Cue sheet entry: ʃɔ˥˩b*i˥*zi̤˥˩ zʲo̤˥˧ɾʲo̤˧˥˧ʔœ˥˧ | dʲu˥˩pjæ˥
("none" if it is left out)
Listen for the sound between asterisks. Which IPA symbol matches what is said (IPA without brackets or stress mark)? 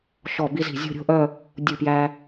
i˥